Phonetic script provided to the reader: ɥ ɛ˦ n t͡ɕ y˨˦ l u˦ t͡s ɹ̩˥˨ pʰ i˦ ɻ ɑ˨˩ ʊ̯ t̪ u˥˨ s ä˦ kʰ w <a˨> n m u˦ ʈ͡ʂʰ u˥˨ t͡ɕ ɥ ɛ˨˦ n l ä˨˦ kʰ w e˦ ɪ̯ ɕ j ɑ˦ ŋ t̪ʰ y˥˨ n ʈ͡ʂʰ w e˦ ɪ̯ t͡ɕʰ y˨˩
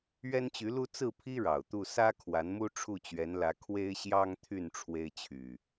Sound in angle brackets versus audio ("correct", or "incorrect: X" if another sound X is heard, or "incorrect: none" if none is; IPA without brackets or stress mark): incorrect: a˨˦